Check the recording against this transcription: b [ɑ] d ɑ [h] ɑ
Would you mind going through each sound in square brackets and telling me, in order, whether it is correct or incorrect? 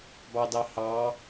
correct, correct

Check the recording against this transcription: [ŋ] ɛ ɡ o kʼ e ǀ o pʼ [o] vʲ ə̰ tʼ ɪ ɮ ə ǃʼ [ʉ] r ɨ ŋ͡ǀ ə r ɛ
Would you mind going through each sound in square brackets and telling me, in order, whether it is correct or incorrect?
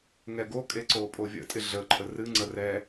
correct, correct, incorrect: ə

